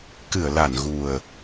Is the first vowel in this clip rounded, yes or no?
no